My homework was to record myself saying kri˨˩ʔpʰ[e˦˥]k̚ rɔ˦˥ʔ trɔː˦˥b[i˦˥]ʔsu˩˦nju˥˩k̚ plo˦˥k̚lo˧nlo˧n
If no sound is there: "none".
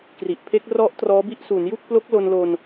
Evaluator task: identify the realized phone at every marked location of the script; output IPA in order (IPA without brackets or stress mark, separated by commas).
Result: e˦˥, i˦˥